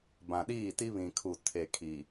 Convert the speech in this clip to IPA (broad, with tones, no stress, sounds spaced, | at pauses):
b ã˨ ɗ iː˦˨ t i˦ β ĩ˨ kʰ u˨ tʰ e˨ kʰ i˨